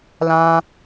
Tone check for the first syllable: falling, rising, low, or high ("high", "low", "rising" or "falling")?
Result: high